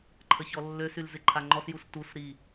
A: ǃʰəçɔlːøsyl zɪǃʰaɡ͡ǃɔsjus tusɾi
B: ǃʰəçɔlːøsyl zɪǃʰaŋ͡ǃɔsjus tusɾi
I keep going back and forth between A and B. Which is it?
B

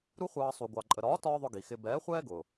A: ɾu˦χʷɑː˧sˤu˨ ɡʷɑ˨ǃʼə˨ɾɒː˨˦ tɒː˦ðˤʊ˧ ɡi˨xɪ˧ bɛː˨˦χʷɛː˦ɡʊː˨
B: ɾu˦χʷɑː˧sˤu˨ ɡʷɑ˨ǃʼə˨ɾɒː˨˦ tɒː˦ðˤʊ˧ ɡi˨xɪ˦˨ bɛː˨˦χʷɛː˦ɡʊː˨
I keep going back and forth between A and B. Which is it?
A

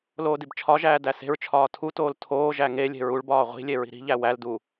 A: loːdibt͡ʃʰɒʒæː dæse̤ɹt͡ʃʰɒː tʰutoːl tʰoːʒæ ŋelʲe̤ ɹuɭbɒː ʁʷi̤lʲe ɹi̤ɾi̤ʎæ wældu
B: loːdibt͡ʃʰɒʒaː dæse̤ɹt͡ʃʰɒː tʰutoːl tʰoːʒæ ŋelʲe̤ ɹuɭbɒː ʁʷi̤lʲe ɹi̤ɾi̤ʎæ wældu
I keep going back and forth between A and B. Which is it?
A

